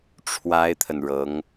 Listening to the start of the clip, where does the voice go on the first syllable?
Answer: high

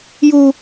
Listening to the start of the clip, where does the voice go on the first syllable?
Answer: high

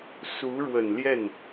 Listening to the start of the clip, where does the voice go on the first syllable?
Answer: rising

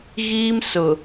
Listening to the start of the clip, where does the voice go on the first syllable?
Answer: high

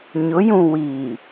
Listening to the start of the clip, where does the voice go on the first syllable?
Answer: rising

